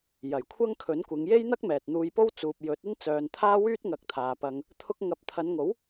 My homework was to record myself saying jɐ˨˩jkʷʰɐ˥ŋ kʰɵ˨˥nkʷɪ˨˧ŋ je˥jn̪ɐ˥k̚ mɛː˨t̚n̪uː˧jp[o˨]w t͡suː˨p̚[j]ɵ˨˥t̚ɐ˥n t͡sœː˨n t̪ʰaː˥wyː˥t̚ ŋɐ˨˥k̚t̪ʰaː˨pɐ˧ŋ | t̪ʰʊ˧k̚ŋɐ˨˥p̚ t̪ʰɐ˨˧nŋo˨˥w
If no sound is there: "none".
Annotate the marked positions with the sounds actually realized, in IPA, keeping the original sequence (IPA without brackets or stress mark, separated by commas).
o˥, j